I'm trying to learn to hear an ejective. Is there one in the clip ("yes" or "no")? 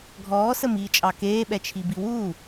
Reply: yes